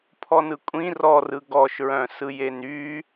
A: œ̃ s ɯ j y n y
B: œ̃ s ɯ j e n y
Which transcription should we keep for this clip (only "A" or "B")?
B